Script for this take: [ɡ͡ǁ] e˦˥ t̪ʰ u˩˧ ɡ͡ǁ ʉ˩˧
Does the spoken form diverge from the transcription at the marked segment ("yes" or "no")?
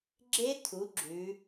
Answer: no